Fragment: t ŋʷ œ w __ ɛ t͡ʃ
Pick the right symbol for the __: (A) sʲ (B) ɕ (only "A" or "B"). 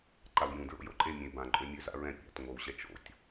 B